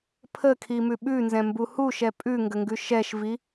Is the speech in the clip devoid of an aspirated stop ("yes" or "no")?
no